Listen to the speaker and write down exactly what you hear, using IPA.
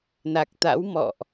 n a˨˩ k̚ t̪ a̰˧˥ w m ɔ̰˧˨ ʔ

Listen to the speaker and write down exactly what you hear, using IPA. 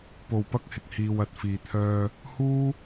p o˨ w p ɐ˧ k̚ h ɪ˨ k̚ h iː˧ w ɐ˨ t̚ f iː˨ t̪ʰ œː˧ | h uː˥

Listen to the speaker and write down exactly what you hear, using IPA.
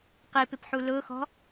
q i p ɪ p ħ u l ʊː x ɔ̤

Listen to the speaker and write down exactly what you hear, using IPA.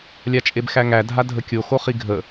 lʲ a t͡ʃʼ e b x æ ŋ æ dʱ a dʱ ə kʲ o x o χ i ɡʱ ə

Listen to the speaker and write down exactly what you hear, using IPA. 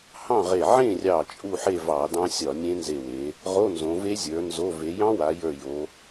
h ɑ̃˥˨ ʁ e˧˩ ʕ ẽ˥˨ rʲ ɑ˧˩ t͡ʃʼ u˥˨ ħ e˥˨ v ɑ˧˩˧ d ɑ̃˦˥ sʲ ɒ˧˩˧ nʲ ẽ˦˥ n z e˧˩ w e˩˧ | ʁ o˧˥˧ n z õ˩˧ v e˦˥ zʲ ə˞˩˧ n z o˧˥˧ v e˩˧ j ɑ̃˦˥ w a˩˧ j ə˞˧˩ j o˩˧

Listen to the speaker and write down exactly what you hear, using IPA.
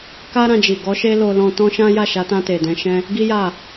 k a˦ ɾ ã˧ d͡ʒ i˨ ɡ ɔ˨˦ ʃ e˦ l o˧ l ɔ̃˧ t ɔ̃˦ ʃ ã˦ j a˦˨ ʃ a˨˦ t ã˧ t e˨ d ɛ̃˨˦ ʃ ɛ̃˦ | ɡ i˦ j a˦˨

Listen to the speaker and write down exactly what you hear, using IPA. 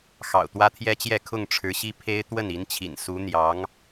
x ɑ̰˨˩ ʊ̯ t̪ w ä˥ t̪ʰ j ɛ˥ t͡ɕ j ɛ˥˧ kʰ ʊ˥˩ ŋ ʈ͡ʂʰ ɻ̩˧˥ ɕ i˥ pʰ e˥ ɪ̯ t̪ w ə˥˩ n i˧˥ n t͡ɕʰ ḭ˨˩ n s u˧˥ n̪ j ɑ˧˥ ŋ

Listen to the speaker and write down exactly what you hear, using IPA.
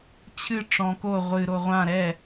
t͡ɕʰ ɨ ʈ͡ʂ ɔ̃ k o ʁʷ ɨ ɾ o ʁʷ ã ɾ ɛ

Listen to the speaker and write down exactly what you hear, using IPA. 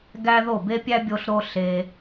ɡ æ˥ ð o˥˩ b e˥ pʲ æ˥ bʲ o˧ ɬ ɾ o˧ ɬ e˧

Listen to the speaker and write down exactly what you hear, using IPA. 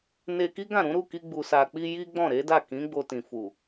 n e˧ k i˦ ɡ ã˦˨ ɾ ũ˨˦ ɾ u˦˨ k i˧ ɡ͡b u˨ s a˨ k͡p i˧ j i˦ ɡ͡b ɔ̃˦˨ ɾ e˨˦ d a˦˨ k ĩ˨˦ ɡ͡b o˧ t ĩ˨ f u˨

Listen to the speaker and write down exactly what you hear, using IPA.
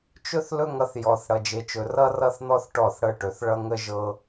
t͡ʃ ɵ˦ θ l ɵ˦ ŋ ʌ˧ θ j ɔ˨ θ ɽ ʌ˧ d͡ʒ e˧ t͡ʃ ɵ˧ r ʌ˦ r ʌ˦ θ n̪ ɔ˦ θ ʈ ɔ˦˨ θ ɽ ɤ˦ ʈ ɵ˨˦ θ ɭ ʌ˦ ŋ ə˦ ʒ ɤ˦

